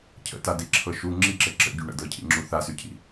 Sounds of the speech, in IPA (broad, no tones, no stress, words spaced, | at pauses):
cʰə̰tadiǁʰɤ ʃu ŋ͡ǁiǁɘ ǁə̰ɟy ɳə̰dɤcʰḭŋ͡ǁu θasycʰḭ